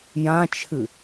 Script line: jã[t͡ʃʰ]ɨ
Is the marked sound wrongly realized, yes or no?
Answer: no